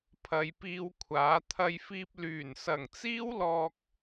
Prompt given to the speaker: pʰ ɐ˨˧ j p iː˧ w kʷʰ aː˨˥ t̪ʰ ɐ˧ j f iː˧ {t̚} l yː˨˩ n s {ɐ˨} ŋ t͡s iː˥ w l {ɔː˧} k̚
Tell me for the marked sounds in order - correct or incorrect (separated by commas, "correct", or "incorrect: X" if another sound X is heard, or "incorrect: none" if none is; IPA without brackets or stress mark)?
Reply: incorrect: p̚, incorrect: ɐ˨˩, correct